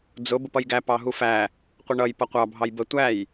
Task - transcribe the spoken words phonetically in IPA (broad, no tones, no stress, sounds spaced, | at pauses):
d͡z ʊ b ə p ʌ j ɡ æ p ɑ ɦ u f æ | qʷ ə ɳ ʌ j p ʌ qʷ ɑ bʱ ɑ j b ə tʷ æ j